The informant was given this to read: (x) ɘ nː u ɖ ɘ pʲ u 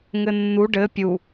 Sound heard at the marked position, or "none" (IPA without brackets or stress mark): ŋ